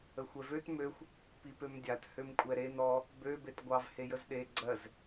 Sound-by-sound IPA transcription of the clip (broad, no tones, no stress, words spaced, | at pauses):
əxʷɛvøt møxʷ | pipømdʲat hømkʷʼɛɾen ɔ | bø betɡʷɑv hejəzɗe ɡ͡ǀɜz